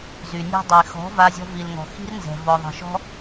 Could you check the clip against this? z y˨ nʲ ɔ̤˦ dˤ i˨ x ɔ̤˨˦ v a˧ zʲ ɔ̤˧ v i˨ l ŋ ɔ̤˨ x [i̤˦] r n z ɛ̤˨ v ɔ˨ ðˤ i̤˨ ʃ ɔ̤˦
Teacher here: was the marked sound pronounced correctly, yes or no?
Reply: yes